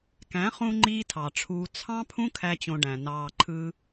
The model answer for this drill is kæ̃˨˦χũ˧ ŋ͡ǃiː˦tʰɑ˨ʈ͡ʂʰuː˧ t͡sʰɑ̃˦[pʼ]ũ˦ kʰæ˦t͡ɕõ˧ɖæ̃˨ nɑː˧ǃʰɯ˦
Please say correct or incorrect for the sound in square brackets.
incorrect